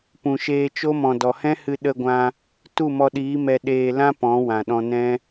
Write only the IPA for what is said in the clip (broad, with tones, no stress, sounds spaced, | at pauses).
p ũ˨ ʃ eː˧ t͡ʃ o˦ m ɔ̃˨ d ɔ˨ h ɛ̃˦ h ɨ˧ ɗ ə˧ ɡʷ ã˧ | t u˦˨ m ɔ˧ ɗ iː˨˦ m ɛ˧ ɗ eː˧ l ã˦ p ɔ̃˨˦ w ã˨ ɗ ɔ̃˧ n ɛ̃˦